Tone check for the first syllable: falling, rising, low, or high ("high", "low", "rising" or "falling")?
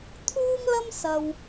high